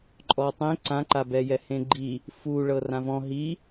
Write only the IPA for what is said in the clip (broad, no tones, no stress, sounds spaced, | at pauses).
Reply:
ǃʼ ɔ tˤ ẽ ǀ ã ǃ a b ɛ j ɛ h ẽ ɡ͡ǃ i | f u ɭ ɤ r ã v ɔ̃ ɦ i